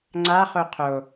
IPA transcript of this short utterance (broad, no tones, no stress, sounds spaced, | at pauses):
ŋ͡ǀ a χ o qʰ o